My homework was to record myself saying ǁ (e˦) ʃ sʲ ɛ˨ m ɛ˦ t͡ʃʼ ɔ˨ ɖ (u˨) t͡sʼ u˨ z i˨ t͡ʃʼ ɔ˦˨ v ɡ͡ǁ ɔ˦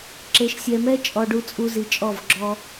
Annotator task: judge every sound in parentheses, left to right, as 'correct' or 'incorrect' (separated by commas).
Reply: incorrect, correct